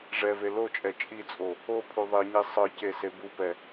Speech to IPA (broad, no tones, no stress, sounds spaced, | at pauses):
ʐ ɛ v e l o t͡ʃʼ ɛ t͡ʃʼ i t͡sʼ o | o pʰ u ðˤ i ɲ e sˤ ɯ c e s e b u p ɛ